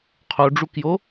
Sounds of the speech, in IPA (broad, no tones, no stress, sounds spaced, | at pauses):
qʰ o ɖ͡ʐ u k j o